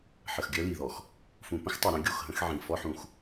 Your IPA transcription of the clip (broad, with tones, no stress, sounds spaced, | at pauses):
ħ ə˨ x ɡʲ œ˦ l i˨ ð ɔ˨ x | f ũ˨ p ə̃˦ x tˤ u˨ ɾ œ̃˦ ɡʲ o˦˨ x ɦ ə̃˦ x ʕ ĩ˨ f ɔ˦ ħ ũ˨ x